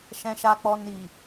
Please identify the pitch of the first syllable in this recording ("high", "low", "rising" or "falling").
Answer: low